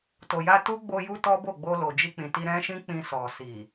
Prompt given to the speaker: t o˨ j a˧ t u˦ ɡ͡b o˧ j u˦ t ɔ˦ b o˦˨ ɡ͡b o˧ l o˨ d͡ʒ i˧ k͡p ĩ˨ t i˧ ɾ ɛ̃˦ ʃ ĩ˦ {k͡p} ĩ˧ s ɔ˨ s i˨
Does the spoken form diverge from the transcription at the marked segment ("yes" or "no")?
no